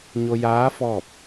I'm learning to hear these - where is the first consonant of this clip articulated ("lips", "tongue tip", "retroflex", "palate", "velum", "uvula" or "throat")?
palate